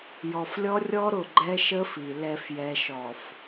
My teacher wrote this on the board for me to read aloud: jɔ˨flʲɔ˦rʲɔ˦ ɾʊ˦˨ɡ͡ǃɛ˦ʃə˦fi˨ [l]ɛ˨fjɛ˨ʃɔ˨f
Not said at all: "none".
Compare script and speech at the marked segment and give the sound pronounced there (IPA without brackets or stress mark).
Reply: l